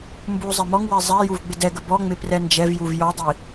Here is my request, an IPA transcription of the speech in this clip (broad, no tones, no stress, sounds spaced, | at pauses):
m b u zˤ ɛ m ɔ ŋ w ɛ zˤ ɛ j u v ɡ͡b ɪ d ɛ ɡ ə b ɔ ŋ͡m ɪ p r ɛ n d͡ʒ ɛ v j u v j ɔ dˤ i